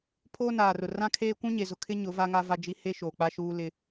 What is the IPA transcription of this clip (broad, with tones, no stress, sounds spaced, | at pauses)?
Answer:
pʰ oː˦ n aː˨ r ʊ˨ r ã˦ kʰ eː˦ kʷ ũ˦ ɲ e˨ z ʊ˨ kʰ ɪ˦ ɲ ʊ˨˦ v a˦ ŋ a˦ v a˦ d͡ʒ i˦ h e˦ ʃ oː˨ k͡p a˦ ʃ uː˦ l ɪ˦